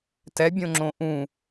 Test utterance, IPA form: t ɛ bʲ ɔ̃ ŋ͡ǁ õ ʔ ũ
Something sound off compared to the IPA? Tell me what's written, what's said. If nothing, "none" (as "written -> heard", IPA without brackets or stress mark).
ɔ̃ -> õ